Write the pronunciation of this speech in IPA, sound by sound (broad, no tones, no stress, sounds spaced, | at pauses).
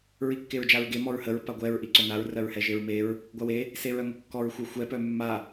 ɹ i kː e ɹ d͡ʒ a ɹ ɡ e m ɔ ɹ h ə ɹ p a ɡʷ ɛ ɹ ʔ i ǀ œ n a ɹ r ɜ ɹ h ɛ ʒ e ɹ m e ɹ | ɡʷ a w e | s e ɹ œ ŋ ə kː ɔ ɹ xʷ œ xʷ ɛ p œ mː a